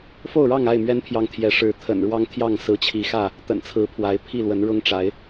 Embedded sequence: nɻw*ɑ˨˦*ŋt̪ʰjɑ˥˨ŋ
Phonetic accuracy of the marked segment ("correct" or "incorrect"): incorrect